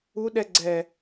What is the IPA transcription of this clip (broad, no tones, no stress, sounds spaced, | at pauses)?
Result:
u ɗ ɛ ɡ͡ǀ ɛ